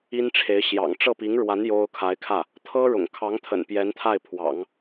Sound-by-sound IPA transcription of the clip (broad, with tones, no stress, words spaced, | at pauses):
i˥nʈ͡ʂʰe˧˥ɪ̯ ɕjɑ̰˨˩ŋ ʈ͡ʂɤ˥˩pi˧˥ŋɻwa˧˥n jo˥ʊ̯ kʰa˧˥ɪ̯kʰä˥˩ | t̪ʰɤ˥ ɻʊ̰˨˩ŋkʰɑ˧˥ŋt̪ʰə̰˨˩n pjɛ˧˥nt̪ʰa˥˩ɪ̯pʰwɑ̰˨˩˦ŋ